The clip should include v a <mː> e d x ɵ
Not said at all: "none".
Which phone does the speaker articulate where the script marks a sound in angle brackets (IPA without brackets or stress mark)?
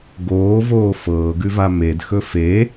m